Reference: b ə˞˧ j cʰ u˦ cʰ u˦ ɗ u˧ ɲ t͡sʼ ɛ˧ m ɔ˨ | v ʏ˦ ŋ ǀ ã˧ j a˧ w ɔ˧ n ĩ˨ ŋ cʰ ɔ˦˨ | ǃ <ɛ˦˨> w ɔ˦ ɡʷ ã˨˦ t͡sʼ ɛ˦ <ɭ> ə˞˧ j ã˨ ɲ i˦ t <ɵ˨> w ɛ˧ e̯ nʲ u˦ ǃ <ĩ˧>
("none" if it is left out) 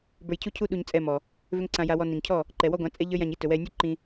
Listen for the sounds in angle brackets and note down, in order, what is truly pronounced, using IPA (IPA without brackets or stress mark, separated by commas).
ɛ˨, ʎ, ɵ˨, ĩ˧